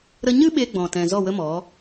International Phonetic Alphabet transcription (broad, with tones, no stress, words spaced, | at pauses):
ɾə˦ ɲɨ˦ ɓe˧ɡ͡bɔ̃˨tɛ̃˨ zɔ˦˨wə˦mɔ˨˦